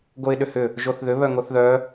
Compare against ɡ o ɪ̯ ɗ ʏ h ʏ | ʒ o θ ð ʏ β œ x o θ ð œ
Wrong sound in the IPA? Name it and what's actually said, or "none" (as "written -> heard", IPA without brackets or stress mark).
x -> ŋ